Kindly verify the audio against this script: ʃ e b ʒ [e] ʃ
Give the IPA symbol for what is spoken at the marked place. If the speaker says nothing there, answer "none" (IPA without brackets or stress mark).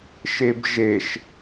e